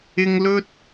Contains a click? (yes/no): no